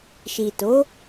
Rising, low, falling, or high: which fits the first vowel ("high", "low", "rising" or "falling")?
low